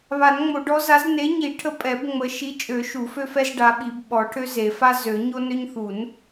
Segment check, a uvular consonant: absent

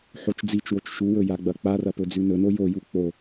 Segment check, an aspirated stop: absent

